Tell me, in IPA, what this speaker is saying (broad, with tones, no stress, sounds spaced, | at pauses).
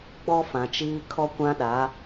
ɡ͡b ɔ˦ f ã˨ t͡ʃ iː˦ kʰ ɔ˦ kʷ ã˦ ɗ a˨˦